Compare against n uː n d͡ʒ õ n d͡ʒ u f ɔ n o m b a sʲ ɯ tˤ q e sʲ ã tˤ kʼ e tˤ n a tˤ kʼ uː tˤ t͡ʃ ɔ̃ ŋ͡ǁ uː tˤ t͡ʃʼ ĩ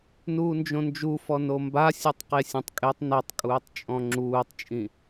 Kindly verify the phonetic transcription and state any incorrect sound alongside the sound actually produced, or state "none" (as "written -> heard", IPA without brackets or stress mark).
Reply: t͡ʃ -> t͡ʃʼ